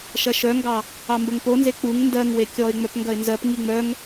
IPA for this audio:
ʃ ɐ ʃ œ ŋ ɡ ɑ | ɑ m b ə ŋ p o n z e k͡p u ŋ n d ɜ ŋ w e kʲ ɔ ɪ̯ ŋ͡m œ p ŋ ɡ ɐ ɪ̯ n z ɜ p ŋ i ŋ͡m œ ŋ

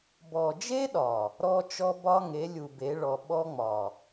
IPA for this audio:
b ɔ˨ d͡ʒ e˦ ɗ ɒ˨ | ɾ ɔ˦ t͡ʃ ɔ˦ b ɒ˦ ŋ e˨˦ lʲ u˨ b e˨˦ ɭ ɔ˨ ɓ ɔ˦ ŋ͡m ɒ˨

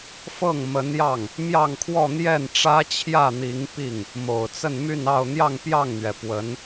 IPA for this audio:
f ɤ˥˩ ŋ m ə˧˥ n j ɑ˥˩ ŋ | m j ɑ˥˧ ŋ kʰ w ɔ˥˧ n̪ j ɛ˥˩ n ʈ͡ʂ ä˥ t͡ɕʰ j ä˥˩ n̪ i˧˥ ŋ p i˥˩ ŋ | m o˨˩ ʊ̯ t͡s ə˥˧ n m y˥˧ n ɑ˥˧ ʊ̯ n̪ j ɑ˥˧ ŋ p j ɑ˥˩ ŋ n̪ ɥ ɛ˩ p w ə˧˥ n

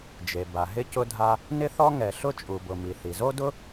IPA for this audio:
d͡ʒ e˩ b a˩ ɦ ɪ˥ c ʊ˥ dʱ a˥ | n ɪ˥ θ ɔ˥ ŋ ɛ˩ ɬ ʊ˥ t͡ʃʼ u˩ b ʊ˩ m i˩ θ i˩ z o˥ d ʊ˥

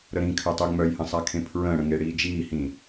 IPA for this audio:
ɾ ə ɾ ĩ kʰ œ tˤ ø ŋ͡m œ j h ə̃ sˤ a kʰ ẽ pʰ ɹ ə̃ː ɽ ə̃ ŋ e ɽ iː d͡ʒ iː h ĩ

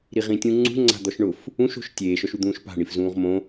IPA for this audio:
ɾ i ʁ ĩ tʲ ũ ŋ͡ǀ ṳ ŋ͡ǀ a̤ d̪ ɔ ʃ ɳ ʊ f | ũ ʃ o̤ ʃ tʲ eː ʃ ɔ ʃ u d̪ ũː ʃ p a̤ ɳ i f z ũː ʁ m õ

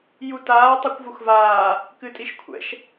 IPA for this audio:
j u t aː tˤ u kʷ v u x v aː | k ɨ tʼ i ʃ kʷʰ ɛ̰ ʃ

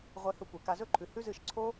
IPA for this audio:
ʁʷ e˧ h ɵ˧ kʷ e˨ k a˧ z ɵ˦ ǃʰ ʉ˨ h ʉ˦ z ɨ˦˨ ʃ ǀʰ o˦

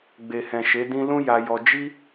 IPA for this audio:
ɡ͡b e˨ h ɛ̃˨ ʃ e˨˦ d ĩ˧ l ũ˦ j a˧ j ɔ˧ d͡ʒ i˦

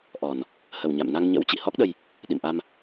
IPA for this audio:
ʔ ɔ˨˩ n | h ə˨˩ w ɲ a̰˧˨ m n a˧ ŋ ɲ ə̰˧˥ w t͡ɕ ḭ˧˨ h ɔ˦˥ k̚ ɗ ə˧ j | ɗ ḭ˧˨ m ʔ a˧ m

